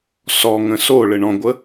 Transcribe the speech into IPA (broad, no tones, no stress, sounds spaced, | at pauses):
s ɔ ŋ ə̃ s o ɭ ɘ ɳ ɔ̃ ɡʷ ə